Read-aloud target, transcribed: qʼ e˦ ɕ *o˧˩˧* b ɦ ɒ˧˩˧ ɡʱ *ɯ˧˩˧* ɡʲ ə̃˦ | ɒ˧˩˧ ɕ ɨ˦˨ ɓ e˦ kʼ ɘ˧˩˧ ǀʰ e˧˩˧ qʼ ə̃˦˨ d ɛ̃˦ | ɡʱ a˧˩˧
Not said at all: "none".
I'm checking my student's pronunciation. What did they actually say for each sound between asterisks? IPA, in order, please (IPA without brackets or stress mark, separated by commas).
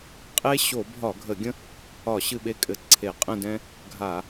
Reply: o˧˩˧, ə˧˩˧